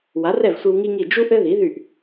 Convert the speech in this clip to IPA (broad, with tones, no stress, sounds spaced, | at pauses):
w a˩˥ r ɛ˥˩ v sʷ i˧ w ŋ i˥ ŋ i˥˩ d͡ʒ u˥ ʔ ɘ˥ ð i˩˥ ð y˥˩ ʔ